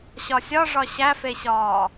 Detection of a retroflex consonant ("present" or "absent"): present